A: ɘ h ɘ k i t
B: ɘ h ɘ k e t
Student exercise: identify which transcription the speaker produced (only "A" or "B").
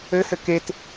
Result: B